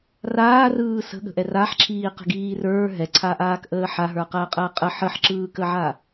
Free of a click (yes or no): no